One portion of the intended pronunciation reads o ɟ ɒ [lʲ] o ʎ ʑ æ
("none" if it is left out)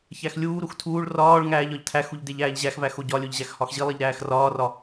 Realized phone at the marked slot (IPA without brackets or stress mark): lʲ